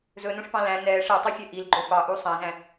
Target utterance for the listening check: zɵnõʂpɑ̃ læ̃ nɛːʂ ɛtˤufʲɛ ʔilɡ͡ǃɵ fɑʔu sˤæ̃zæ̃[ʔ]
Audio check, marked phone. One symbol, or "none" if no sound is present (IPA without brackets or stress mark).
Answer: none